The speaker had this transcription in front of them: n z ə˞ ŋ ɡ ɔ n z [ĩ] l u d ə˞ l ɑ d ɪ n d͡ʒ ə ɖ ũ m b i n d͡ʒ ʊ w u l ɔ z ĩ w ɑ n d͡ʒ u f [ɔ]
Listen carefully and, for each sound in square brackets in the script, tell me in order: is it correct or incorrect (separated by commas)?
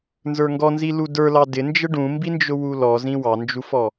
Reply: incorrect, correct